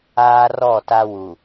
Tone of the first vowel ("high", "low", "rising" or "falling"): high